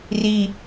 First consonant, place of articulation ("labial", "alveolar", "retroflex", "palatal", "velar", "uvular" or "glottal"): alveolar